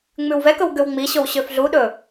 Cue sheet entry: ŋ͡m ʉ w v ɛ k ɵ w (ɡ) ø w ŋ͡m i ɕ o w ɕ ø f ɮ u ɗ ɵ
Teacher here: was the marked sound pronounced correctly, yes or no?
yes